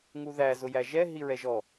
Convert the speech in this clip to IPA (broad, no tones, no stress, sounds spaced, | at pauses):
ŋ u ð æ z ʊ j æ ʒ ɛ ɦ i ɹ ɛ ʒ ɔ